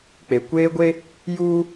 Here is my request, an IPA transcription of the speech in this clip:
k͡pe˨kʷeː˦ɡʷe˦ | juː˦

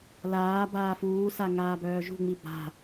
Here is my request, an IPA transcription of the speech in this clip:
laː baːfuːsa ŋaːbœːʒṳŋ͡mi ba̤

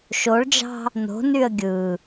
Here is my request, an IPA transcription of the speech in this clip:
ʃoɭd͡ʒɑ̤ | no̤nyə̯ ɡʲɯ

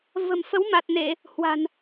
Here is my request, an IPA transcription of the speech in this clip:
və̤˨˩mfə˨˦wma˨˩t̚ne˧˩˨ | hwa̤˨˩n

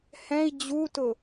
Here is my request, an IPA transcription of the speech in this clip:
hɛ̃i̯ d͡ʑutʊ

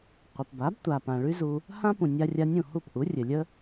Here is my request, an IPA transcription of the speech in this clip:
qʷə˩pba˩˥btʷa˩pã˩ ɭy˥ zu˧ | hã˥pũ˩ nʲa˧rʲa˧nʲũ˥˩ hu˥˩p ʔu˩˥rʲɘ˩lʲə˥

